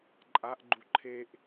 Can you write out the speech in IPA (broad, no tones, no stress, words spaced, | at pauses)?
ǃʼaʔɡ͡ǃu ǃʰeʔ